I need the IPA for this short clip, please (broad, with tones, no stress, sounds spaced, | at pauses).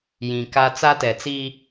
j ĩ˨ k a˦ t͡s a˦ t ɛ˨ t͡s iː˦